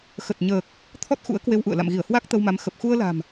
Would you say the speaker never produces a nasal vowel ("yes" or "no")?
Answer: yes